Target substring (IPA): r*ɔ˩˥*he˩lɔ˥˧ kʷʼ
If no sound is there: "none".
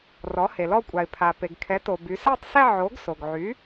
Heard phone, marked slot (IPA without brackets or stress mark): ɔ˩˥